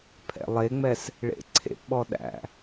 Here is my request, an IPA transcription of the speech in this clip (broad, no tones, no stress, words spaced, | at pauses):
pʰɛ̰lˠeŋ͡mɛs | ɭḛǀʰḛpɓɔ ɗæ̰